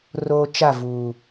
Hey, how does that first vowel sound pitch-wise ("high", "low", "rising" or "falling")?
low